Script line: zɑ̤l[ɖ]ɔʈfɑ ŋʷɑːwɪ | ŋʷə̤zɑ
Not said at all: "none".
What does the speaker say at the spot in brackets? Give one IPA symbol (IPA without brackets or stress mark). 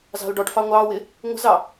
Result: ɖ